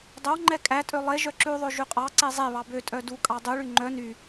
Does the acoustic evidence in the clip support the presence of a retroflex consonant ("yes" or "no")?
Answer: yes